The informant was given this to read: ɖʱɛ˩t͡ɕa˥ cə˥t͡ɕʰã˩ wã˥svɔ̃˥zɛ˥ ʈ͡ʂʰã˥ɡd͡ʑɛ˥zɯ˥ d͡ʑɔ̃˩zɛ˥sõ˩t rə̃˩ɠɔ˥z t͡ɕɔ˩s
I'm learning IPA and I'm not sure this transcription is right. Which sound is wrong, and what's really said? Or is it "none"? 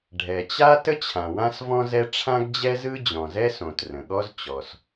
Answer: c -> t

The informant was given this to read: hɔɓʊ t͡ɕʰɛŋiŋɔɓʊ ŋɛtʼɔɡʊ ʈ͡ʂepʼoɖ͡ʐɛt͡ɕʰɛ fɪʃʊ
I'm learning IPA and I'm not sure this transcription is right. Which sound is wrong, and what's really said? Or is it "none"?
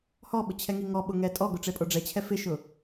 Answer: none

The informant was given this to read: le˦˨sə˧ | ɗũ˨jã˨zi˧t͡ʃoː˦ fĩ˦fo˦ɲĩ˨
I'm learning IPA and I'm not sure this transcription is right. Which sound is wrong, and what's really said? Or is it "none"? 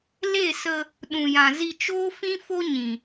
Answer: none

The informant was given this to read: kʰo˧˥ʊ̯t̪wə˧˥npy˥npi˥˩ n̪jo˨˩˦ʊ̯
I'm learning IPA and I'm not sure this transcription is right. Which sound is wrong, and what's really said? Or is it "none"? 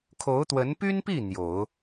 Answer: none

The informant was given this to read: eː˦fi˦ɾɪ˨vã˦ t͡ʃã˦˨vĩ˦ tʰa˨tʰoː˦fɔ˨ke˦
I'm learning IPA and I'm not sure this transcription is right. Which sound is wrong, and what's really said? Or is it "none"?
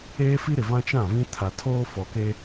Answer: none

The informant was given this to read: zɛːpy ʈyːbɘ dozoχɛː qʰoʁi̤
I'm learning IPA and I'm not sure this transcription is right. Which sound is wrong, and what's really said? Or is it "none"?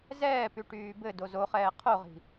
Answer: none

